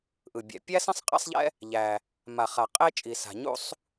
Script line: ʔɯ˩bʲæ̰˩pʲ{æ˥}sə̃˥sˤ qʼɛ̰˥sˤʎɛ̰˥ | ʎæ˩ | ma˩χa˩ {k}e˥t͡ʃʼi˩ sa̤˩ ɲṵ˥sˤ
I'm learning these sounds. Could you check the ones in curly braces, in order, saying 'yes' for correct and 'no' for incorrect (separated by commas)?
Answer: yes, no